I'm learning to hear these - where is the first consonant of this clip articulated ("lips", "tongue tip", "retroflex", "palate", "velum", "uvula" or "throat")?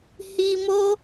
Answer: throat